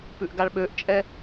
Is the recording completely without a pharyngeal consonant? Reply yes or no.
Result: yes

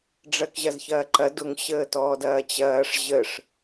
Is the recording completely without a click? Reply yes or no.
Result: no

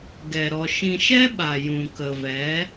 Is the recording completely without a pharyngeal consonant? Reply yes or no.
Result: yes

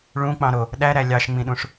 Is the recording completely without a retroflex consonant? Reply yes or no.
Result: no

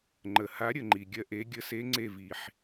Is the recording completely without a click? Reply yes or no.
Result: no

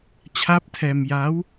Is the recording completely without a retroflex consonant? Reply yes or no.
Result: yes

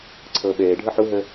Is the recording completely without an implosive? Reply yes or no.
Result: no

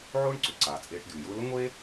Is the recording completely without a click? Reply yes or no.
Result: no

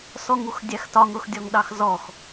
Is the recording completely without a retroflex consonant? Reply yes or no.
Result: yes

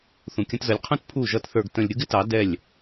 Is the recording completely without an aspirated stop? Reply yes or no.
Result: no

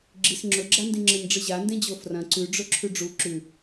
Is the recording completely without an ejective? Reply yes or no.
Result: yes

